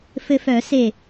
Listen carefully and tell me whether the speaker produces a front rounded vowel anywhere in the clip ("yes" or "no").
yes